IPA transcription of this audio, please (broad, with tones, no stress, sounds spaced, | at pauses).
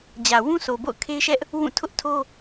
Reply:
d͡ʑ ä˨ w ũ˦ sʰ o˨ b o̰˦˨ ʊ̯ kʰ e˦ ɪ̯ ʃ ɛ˦ ʔ | w ũ˦˨ tʰ ʊ˦ ʔ tʰ o˦